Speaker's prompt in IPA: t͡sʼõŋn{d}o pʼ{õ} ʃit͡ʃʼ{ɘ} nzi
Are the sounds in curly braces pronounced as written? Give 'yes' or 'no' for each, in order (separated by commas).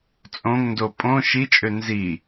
yes, yes, no